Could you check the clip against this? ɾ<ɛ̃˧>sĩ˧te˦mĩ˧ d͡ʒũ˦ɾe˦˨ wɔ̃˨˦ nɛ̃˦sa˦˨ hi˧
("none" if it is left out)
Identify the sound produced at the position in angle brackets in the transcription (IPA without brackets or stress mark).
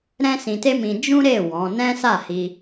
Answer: ɛ̃˦